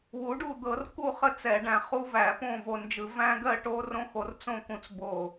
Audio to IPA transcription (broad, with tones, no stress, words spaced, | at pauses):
wu˩˥ɖu˥˨ d̪ɤ˧˩˧rku˥˨χə˦˥ t͡sɛ˧˩˧ɖæ̃˧ χu˦˥væ˧˩˧ põ˥˨vo˧nd͡ʒɯ˧˩˧ væ̃˦˥ɡɜ˥˨ʈo˦˥ rõ˦˥xo˧rt͡sõ˥˨kũ˧t͡s bo˥˨